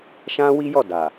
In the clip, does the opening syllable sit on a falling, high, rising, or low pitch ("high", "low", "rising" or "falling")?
high